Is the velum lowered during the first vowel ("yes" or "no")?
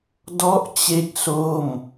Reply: no